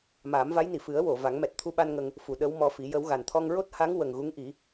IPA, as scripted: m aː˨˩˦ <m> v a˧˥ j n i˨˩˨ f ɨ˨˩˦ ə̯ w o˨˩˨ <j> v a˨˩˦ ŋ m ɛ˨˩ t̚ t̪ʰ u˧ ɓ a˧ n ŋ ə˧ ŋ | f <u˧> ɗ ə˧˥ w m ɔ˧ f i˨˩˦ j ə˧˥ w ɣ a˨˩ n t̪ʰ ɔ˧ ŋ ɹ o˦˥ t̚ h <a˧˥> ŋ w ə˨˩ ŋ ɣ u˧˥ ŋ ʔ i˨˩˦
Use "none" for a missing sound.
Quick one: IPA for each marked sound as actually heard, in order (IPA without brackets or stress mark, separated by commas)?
m, none, u˨˩˨, a˧˥